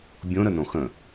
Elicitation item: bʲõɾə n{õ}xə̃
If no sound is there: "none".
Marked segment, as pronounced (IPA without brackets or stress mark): õ